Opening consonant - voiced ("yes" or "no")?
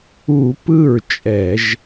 no